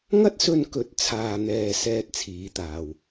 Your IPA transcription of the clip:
ŋ ɐ˥ t̚ s ɵ˧ n k ɵ˨˥ t̚ t͡sʰ aː˨ n̪ ɛː˨ s ɛː˥ t̚ t͡sʰ iː˨˧ t̪ aː˨ w

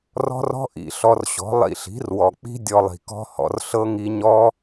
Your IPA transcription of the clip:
r ɔ̤˦ r ɔ̤˦ ʔ ḭ˧ ɬ ɔ˧ r ɕ ɔ̤˨˦ lˠ ḭ˧ ɬ i̤˨˦ r w ɔ˨ k͡p i̤˦ dʲ ɔ˧ lˠ i̤˨ k ɔ̤˦ h ɔ̰˧ r ɬ ɤ˦ ŋ i˧ ɲ ɔ˦

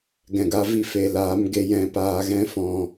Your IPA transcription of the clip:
ɡ ɛ̃˨ ɡ a˧ v i˧ f e˨ l aː˨˦ m ɡ e˧ j ɛ̃˧ p aː˧ ɣ ɛ̃˦ f ɔ̃˧

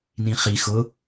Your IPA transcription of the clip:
n ĩ χ i x ʊ

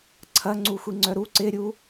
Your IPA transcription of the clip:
ǀʰ ɐ ŋ͡ǀ u xʷ i ŋ͡ǀ œ ɾ u ǀ ɪ ɾʲ u

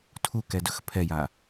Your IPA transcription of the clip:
tʰ u k ɛ d ɵ x pʰ ɛ j a

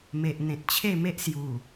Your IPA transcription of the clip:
m e˨ ʔ n̪ ẽ˨ t̚ t͡ɕʰ e˥˧ m e˦ ʔ s j u˨˩

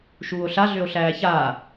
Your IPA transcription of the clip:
ʃ uː o̯ ɬ a ɮ ø o̯ ɬ æː ç aː

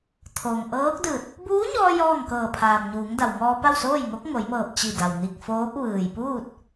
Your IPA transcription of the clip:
t̪ʰ o˩ ŋ ʔ ɤː˧˥ k̚ d ɯː˧˩ t̚ | b uː˧˥ ɲ ɔː˧ j ɔː˥˨ ŋ k ɤː˧˩ pʰ aː˩ m ɲ uː˩˧ ŋ d a˩ w ŋ ɔː˧ p a˥˨ w s oː˥˨ j ŋ o˧˥ k̚ ŋ o˩˧ j m ɤː˧˩ p̚ t͡ɕ i˧˩ d a˩ w n i˧˩ k̚ f oː˧˥ p̚ ʋ ɯː˩ j p uː˥˨ t̚

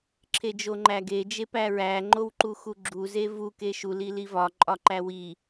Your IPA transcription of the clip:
ǁʰ e d͡ʒ o ŋ͡ǃ æ ɡ e d͡ʒ e p æ ɹ æ ŋ͡ǃ o w ǃ u x u ɡ͡ǁ u z e v u k e ʃ u l i l i v ɒ ǃʼ ɒ ǃ æ w i

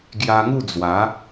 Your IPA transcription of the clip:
ɡ j a˧ ŋ u˥˧ d͡z w a˨˦

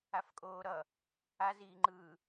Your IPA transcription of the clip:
a f kʼ oː ɾ ʌ | a z iː ŋ͡ǃ ɯː

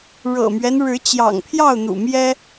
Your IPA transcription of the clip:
ɻ ɤ̰˨˩ m ɥ ɛ˦ n ɻ ɻ̩˨˦ t͡ɕ j ɑ̰˨˩ ŋ pʰ j ɑ˥˨ ʊ̯ n̪ ṵ˨˩ m j ɛ˦

